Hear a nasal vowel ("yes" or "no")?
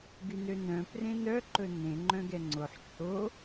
yes